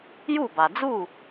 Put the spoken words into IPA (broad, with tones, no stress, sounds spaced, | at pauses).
j u˥˩ b a˩ d͡z u˥˩